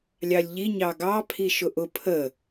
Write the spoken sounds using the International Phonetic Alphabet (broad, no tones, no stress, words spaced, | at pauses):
lʲɑlʲʎi ɲɑɡɑ pʰiʃʊʔʊ pʰə